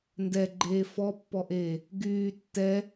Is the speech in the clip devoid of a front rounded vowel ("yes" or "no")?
no